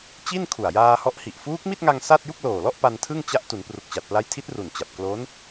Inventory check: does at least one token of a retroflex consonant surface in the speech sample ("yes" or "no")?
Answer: no